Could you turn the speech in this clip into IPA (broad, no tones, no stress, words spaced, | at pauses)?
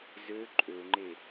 zø ǃʼøŋ͡ǃe